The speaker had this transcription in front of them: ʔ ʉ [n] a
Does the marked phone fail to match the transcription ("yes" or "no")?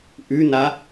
no